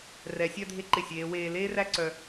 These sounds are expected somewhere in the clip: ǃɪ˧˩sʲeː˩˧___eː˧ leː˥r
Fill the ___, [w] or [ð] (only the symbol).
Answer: w